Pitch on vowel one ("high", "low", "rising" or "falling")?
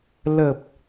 low